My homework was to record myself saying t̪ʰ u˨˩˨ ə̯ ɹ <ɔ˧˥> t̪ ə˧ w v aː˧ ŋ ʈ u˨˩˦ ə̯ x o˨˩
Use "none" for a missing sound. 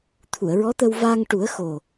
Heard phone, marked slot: ɔ˧˥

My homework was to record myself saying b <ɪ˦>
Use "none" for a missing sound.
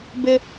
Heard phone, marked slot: ɪ˦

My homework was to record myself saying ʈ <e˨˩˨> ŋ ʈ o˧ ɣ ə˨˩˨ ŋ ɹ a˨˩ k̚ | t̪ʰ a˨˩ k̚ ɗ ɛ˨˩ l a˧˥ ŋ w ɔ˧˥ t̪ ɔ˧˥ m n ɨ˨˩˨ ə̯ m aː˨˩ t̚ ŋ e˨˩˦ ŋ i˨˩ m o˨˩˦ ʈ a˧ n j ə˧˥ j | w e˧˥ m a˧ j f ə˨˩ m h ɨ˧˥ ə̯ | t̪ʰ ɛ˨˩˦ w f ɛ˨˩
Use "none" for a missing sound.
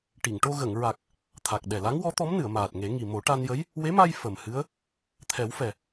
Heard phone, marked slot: i˨˩˨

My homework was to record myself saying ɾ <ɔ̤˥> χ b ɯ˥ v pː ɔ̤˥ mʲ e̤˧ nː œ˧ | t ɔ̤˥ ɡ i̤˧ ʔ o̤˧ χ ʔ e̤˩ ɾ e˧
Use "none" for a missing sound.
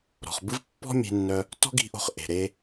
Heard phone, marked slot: ɔ̤˩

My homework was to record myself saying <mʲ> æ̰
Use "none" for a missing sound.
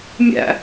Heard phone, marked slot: mʲ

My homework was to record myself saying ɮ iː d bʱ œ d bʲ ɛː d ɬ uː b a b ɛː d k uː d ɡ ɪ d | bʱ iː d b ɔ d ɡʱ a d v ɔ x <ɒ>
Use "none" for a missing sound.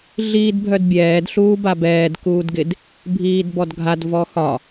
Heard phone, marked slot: ɒ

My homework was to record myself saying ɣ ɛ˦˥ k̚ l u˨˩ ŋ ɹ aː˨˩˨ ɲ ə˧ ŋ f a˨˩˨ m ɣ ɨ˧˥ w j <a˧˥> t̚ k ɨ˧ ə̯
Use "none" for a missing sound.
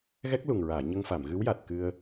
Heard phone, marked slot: a˨˩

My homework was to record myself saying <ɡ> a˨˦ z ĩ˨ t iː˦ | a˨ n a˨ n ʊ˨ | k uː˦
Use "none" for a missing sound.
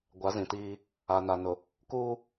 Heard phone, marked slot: ɡʷ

